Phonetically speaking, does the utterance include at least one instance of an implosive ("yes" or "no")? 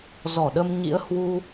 yes